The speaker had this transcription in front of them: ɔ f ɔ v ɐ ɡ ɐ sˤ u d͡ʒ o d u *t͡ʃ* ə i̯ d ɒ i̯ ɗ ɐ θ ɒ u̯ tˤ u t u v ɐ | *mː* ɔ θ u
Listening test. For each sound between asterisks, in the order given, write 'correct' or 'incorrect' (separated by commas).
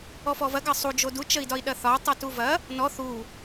correct, incorrect